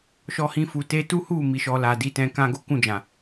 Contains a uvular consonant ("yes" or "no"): no